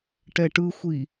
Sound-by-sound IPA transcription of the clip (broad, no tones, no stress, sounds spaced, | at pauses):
ʈ ɛ ʈ ɯ xʷ i